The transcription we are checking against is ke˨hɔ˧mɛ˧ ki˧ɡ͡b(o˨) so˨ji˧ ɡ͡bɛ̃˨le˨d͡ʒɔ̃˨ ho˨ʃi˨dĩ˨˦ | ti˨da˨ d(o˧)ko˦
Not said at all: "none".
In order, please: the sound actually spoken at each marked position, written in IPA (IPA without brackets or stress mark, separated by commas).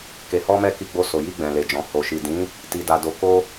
o˧, o˨˦